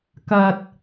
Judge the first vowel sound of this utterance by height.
low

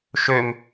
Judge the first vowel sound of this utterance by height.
mid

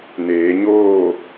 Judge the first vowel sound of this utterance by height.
mid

